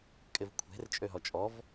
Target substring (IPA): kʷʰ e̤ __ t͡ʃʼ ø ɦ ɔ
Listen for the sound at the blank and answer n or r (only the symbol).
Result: r